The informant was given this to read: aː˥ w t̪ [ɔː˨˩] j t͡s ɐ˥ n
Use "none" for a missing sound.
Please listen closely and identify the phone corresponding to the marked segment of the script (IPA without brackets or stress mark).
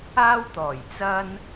ɔː˨˩